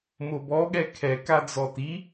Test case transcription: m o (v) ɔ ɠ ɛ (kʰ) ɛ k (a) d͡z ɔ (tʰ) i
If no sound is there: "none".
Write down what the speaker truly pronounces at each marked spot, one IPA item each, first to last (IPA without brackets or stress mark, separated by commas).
b, kʰ, a, t